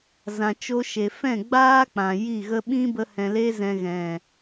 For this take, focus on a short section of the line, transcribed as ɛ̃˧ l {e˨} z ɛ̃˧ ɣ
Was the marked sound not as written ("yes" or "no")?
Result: yes